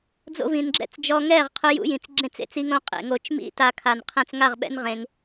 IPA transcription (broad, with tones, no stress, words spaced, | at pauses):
d͡zo̰˧vĩ˨nɡ͡ǁɛ̰˦t͡s d͡ʒɔ˧ŋɛː˦˨ʁqʰʊ˧ jṵ˦ jĩ˨t͡sɡ͡ǁẽ˦˨t͡sḛ˦t͡s i˧ŋõ˧ qʼḛ˦˨ŋo˦˨t͡ʃ mḭ˦ta˧kʰa˨n qʰɛ̃˧t͡sŋa˦˨ʁɓɛ̰˦n ʁẽ˧ŋ